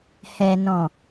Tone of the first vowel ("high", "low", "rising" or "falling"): low